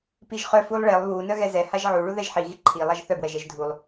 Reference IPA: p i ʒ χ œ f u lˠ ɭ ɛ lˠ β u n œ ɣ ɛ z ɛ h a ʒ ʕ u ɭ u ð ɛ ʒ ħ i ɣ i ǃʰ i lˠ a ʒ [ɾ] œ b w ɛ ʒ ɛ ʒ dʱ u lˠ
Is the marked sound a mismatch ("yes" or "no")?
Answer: yes